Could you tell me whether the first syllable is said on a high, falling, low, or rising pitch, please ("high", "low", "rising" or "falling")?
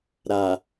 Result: low